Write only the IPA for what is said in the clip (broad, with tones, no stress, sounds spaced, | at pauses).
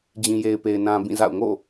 d͡ʑ ĩ˨ j e˨ ɪ̯ p e˨ ɪ̯ n ã˨ b ĩ˦˨ z a̰˦˨ ʊ̯ ŋ o̰˦˨